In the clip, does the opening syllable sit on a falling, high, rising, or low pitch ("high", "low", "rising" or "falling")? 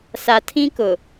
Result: low